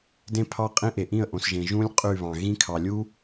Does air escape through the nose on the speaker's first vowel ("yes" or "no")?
yes